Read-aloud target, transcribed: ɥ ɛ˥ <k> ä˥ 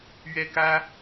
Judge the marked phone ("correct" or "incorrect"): correct